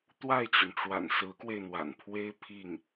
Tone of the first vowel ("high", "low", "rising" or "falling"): falling